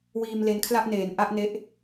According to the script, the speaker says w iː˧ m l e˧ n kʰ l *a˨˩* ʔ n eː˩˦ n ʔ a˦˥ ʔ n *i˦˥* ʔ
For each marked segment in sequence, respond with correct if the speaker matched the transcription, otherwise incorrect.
incorrect: a˥˩, incorrect: e˦˥

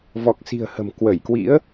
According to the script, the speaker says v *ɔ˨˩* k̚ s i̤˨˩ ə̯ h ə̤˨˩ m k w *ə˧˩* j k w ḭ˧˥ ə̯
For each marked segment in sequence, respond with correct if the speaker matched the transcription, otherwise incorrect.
correct, correct

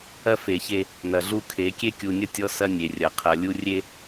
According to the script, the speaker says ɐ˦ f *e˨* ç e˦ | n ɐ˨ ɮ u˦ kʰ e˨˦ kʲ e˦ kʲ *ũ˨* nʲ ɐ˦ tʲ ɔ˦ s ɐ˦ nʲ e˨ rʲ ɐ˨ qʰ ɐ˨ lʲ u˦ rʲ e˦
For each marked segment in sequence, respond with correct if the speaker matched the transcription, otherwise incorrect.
correct, incorrect: u˨

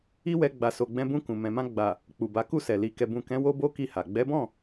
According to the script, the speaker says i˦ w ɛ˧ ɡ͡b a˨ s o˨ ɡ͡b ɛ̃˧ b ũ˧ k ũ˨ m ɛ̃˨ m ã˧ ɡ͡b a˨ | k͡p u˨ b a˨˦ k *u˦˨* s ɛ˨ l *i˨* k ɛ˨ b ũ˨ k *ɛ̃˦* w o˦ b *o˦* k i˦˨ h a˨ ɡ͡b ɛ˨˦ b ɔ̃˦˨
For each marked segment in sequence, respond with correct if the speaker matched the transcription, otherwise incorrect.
correct, correct, incorrect: ɛ̃˨˦, correct

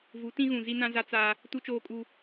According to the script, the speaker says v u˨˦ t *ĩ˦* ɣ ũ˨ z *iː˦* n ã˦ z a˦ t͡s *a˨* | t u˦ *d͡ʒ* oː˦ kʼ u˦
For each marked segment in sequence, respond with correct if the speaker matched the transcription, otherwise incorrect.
correct, incorrect: i˦, incorrect: a˦, incorrect: t͡ʃ

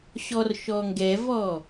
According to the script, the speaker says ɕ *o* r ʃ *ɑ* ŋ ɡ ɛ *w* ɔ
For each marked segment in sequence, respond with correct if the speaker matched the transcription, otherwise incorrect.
incorrect: ɔ, incorrect: ɔ, incorrect: v

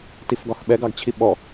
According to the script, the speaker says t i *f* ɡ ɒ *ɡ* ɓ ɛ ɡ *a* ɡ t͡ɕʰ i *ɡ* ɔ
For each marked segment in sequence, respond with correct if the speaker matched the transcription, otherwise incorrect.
correct, incorrect: x, incorrect: ɑ, incorrect: ɓ

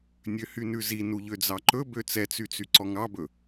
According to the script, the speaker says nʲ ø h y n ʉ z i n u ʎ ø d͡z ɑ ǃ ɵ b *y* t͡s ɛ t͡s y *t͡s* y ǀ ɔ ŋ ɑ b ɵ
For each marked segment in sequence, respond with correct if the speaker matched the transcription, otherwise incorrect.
incorrect: ø, correct

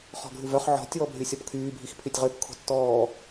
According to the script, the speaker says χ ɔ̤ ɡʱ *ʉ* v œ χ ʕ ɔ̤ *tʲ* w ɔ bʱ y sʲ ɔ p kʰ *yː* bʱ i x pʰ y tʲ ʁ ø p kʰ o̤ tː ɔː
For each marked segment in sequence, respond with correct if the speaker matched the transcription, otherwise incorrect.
correct, correct, correct

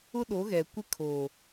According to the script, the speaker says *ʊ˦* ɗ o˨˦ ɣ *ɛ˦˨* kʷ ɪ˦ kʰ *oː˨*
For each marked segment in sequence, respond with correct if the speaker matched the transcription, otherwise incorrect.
correct, incorrect: ɛ˨, correct

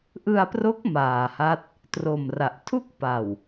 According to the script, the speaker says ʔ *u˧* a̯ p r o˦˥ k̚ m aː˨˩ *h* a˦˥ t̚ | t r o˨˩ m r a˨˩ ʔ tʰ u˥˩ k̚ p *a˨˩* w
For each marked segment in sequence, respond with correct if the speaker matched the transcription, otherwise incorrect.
incorrect: ɯ˧, correct, correct

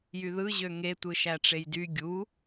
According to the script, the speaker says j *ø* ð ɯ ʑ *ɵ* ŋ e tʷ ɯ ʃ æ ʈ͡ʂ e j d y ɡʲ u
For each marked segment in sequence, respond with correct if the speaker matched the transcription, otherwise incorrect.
incorrect: y, incorrect: ø

